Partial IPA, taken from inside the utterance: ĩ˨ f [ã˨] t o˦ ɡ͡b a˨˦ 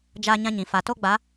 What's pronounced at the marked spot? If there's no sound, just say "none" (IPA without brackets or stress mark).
a˨